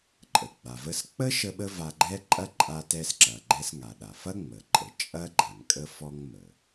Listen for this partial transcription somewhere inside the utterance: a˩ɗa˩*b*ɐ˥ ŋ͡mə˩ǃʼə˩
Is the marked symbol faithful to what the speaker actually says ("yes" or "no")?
no